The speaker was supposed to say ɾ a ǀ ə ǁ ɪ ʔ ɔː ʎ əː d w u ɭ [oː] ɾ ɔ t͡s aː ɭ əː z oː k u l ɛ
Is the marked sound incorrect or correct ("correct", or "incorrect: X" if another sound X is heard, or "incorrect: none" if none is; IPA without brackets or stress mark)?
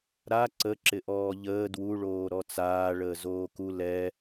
correct